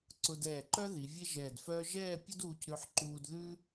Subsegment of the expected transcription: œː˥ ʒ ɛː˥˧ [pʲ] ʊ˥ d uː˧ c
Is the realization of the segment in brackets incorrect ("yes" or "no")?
no